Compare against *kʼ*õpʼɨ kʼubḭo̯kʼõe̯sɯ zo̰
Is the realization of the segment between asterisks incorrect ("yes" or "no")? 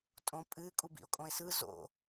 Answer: yes